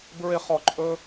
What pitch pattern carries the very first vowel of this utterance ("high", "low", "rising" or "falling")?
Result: high